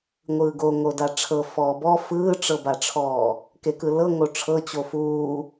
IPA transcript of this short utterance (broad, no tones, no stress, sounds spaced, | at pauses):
ŋʷ ɯː ɡ o ŋ o d a ʈ͡ʂʰ ɤ f ɔː b ɔ f ɯː ʈ͡ʂ ɤ b a ʈ͡ʂʰ ɔː | k e k ɯ l ɤ ŋ o ʈ͡ʂʰ ɤ t͡ɕ o f uː